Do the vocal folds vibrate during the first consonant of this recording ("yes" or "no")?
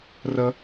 yes